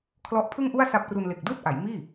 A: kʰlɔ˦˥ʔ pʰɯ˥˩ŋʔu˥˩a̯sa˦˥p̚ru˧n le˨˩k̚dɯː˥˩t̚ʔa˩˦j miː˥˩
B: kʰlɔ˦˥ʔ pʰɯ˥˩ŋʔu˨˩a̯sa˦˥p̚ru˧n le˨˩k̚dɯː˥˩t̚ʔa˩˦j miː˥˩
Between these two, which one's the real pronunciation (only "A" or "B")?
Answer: A